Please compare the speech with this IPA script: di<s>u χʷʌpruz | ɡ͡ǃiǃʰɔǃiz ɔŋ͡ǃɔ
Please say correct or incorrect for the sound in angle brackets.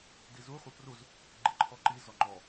incorrect: z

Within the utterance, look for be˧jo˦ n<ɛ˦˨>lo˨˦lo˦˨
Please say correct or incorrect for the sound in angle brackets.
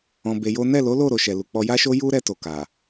correct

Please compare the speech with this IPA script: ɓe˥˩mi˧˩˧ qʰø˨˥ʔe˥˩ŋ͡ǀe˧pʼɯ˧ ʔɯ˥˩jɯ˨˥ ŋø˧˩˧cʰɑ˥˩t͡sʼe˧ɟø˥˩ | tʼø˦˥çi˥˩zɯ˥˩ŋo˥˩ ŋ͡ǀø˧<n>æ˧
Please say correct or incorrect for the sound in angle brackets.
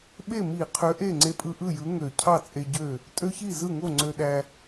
incorrect: ɗ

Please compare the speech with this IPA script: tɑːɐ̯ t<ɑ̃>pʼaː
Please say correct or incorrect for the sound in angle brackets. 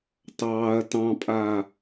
correct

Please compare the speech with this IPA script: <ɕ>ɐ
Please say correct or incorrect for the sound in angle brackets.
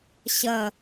correct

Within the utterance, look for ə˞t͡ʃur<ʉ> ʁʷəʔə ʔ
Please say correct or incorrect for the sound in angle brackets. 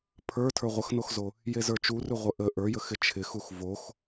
correct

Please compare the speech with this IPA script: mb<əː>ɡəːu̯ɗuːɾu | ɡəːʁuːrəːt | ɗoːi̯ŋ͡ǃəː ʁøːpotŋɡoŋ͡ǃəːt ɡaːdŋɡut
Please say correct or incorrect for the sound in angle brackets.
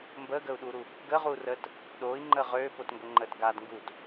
correct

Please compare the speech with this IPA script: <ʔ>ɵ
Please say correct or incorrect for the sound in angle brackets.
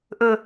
correct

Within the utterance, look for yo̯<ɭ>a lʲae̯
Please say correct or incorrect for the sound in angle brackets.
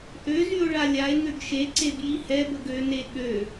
correct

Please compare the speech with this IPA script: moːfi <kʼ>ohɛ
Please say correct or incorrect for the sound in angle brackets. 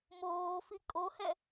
correct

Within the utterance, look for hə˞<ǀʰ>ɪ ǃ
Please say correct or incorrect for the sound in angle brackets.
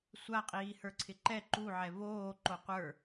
correct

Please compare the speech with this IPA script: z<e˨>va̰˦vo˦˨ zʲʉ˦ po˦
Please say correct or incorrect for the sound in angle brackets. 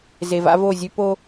correct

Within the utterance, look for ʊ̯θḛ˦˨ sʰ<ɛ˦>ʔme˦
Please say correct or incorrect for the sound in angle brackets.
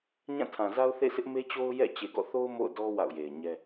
incorrect: ɪ˦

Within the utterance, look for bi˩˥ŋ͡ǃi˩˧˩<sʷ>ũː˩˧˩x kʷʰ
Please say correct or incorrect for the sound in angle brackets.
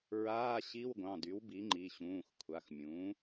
incorrect: ɕ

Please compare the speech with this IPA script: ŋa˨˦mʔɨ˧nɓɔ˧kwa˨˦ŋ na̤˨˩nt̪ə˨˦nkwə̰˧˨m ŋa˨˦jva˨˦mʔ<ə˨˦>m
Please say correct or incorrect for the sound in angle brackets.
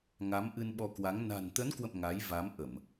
incorrect: ə˧˩˨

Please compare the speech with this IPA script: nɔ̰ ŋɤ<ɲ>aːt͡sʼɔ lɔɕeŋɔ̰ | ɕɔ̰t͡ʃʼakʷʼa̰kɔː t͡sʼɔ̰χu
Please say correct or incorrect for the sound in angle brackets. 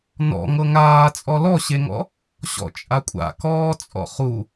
incorrect: ŋ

